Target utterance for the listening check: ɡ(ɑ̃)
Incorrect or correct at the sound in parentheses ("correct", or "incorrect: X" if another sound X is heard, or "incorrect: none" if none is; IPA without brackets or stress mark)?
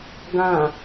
incorrect: ã